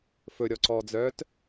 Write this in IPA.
f ɵ ɾʲ ɔ ǀ ɔː d͡z œː t

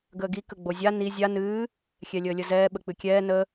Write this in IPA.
ɡ əː ɡ i k ə ɡ͡b o zʲ a n i zʲ a n ɨː | xʲ ɛ lʲ əː lʲ ə z ɛː ɓ ə k͡p ɨ kʲ ɛː n ə

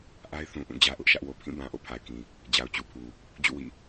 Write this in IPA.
ʔ a˦ ɪ̯ θ ũ˨ ʔ ũ˦˨ d͡ʑ ä˦ ʔ ʊ˦ ʔ ʃ ä˦ ʔ w o˨ pʰ ĩ˦˨ b ã˨ ʔ o̰˦˨ pʰ a˨ ɪ̯ k ĩ˨ | d͡ʑ a˨ ʊ̯ t͡ɕ u˨ pʰ u˨ | d͡ʑ ṵ˦˨ w ḭ˦˨

